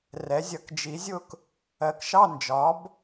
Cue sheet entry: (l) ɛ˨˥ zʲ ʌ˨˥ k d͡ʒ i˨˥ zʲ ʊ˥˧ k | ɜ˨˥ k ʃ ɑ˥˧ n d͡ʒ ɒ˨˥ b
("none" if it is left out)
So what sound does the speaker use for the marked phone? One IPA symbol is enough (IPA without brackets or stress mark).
r